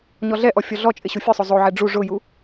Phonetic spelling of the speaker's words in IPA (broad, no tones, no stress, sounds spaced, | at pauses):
ɲ ɔ ɮ ɛ ʔ ɔ fʲ ɔ ɮ ɔ t͡ʃʼ ɪ ɕ u fʲ ʊ sˤ o zˤ o ʕ ɛ ɖ͡ʐ u ʐ ʊ j u